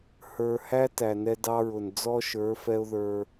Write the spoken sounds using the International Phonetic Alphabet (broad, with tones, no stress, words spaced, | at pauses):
hə˞˨hæ˦ tæ˨nɛ˦dɑ˦ɹʊ˨n d͡zɔ˦ʃə˞˨˦fɛ˦ʊ̯ ðə˞˦